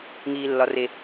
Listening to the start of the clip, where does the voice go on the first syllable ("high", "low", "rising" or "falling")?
high